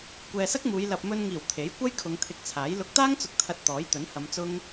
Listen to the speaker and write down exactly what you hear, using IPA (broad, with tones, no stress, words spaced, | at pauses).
kʷɛː˨sɐ˥k̚muː˨˧j lɐ˨p̚mɵ˧nŋiː˨˩w t̪ʰe˨˥j kʷɐ˥jkʰʊ˨˧ŋ t̪ʰɪ˧k̚t͡sʰaː˨˥j lʊ˨k̚t̪aː˥ŋt͡sʊ˨k̚ t̪ʰɐ˧t̚t̪ɔː˨˥jt̪ɵ˨˥nhɐ˨˧m t͡sʊ˥ŋ